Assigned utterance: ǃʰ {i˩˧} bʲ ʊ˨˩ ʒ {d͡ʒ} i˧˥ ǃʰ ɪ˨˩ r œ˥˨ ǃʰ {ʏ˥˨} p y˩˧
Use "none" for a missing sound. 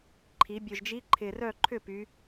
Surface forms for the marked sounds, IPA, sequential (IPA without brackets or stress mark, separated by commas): i˩˧, d͡ʒ, ʏ˥˨